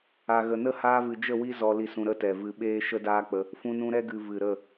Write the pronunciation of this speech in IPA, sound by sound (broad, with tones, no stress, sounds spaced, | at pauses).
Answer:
a˨ ɣ ə˨ n ə˦ h aː˧ v ɨ˨ d͡ʒ ə˦˨ w i˦ z ɔ˧ l i˨ s ũ˨ ɾ ə˦ t ɛ˨ v ɨ˧ ɓ eː˦ ʃ ə˦ d aː˦ k͡p ə˧ | f ũ˧ n ũ˧ ɾ ɛ˦ ɡ ɨ˨ v ɨ˨ ɾ ə˦˨